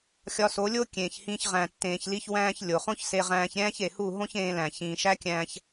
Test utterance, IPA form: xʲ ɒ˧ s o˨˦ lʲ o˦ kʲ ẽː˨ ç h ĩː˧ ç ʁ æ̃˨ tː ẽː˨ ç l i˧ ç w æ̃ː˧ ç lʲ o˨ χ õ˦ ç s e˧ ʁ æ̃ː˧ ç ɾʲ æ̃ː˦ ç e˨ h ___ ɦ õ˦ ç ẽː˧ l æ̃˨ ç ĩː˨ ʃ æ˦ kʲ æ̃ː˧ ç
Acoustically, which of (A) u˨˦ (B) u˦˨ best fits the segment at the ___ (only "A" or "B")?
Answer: B